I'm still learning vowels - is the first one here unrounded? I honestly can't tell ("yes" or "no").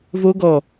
no